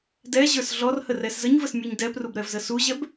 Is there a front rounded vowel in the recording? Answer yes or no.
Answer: no